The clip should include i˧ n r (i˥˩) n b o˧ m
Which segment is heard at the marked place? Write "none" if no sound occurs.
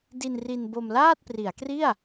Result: i˧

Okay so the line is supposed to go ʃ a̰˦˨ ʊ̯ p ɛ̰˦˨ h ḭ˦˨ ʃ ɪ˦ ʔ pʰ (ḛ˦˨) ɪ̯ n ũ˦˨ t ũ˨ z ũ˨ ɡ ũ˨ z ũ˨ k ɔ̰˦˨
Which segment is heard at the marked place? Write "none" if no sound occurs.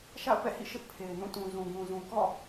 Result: e˨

